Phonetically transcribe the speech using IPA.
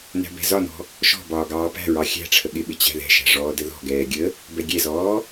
n æ̤ b ɛ̤ z ɒ n ɔ̤ | ʃ ɔ̤ b ɒː ɡ ɑː p æ̤ ɹ ɑ xʲ æ̤ ʈ͡ʂʰ ə ɠ ɪ ɓ ɪ t͡ɕ æ̤ ð ɛ̤ ʃ æ̤ ʐ ɔː d ə ð ɔ̤ ɡ ɛː ɡʲ ə | b ɛ ɡʲ ɛ z ɔː

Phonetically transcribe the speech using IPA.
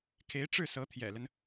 kʰ e˧˥ ɪ̯ ʈ͡ʂ ɻ̩˥˩ s ɤ˧˥ t̪ʰ j ɛ̰˨˩ l ə˦ n

